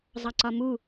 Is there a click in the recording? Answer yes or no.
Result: yes